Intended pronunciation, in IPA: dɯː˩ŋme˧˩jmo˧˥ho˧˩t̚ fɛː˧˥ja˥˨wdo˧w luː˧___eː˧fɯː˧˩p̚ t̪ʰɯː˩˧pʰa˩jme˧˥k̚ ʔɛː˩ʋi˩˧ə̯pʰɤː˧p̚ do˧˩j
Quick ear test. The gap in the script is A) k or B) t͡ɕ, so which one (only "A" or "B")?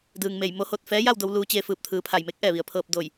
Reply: B